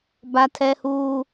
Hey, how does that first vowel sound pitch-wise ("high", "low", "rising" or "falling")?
high